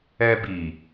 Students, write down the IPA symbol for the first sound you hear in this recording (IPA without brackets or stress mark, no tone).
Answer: ɛ